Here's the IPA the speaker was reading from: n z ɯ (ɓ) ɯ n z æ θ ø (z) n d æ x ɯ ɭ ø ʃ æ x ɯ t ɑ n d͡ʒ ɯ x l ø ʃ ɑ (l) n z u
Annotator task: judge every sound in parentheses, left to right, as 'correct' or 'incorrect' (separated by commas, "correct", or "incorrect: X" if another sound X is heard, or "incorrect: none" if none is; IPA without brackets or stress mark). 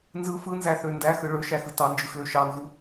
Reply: incorrect: f, incorrect: none, incorrect: none